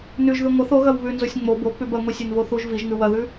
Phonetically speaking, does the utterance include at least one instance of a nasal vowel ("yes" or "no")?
no